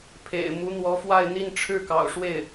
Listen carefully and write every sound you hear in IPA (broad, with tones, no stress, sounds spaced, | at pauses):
pʰ ḛ˨˩ ɪ̯ m u˧˥ n̪ w ɔ˧˥ f w a˥˧ ɪ̯ n̪ i˥˧ n ʈ͡ʂʰ ɻ̩˥˩ k ɑ̰˨˩ ʊ̯ ʂ w e˥˩ ɪ̯